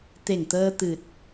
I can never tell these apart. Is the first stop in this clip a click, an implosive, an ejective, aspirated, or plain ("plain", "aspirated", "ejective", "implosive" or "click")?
plain